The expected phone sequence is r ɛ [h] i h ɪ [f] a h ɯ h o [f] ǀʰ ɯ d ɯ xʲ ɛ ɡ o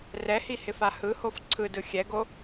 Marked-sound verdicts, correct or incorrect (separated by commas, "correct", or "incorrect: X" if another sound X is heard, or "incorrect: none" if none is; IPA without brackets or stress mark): correct, correct, correct